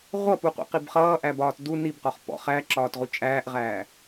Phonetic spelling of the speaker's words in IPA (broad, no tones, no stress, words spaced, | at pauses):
ʁʷʌpuqʷḭqib χʌːʔæbɒːt du nibqɒχ pɔ̰ χæǁɒːtʁu t͡ʃʼæːʔʁæː